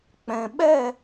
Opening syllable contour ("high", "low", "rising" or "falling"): low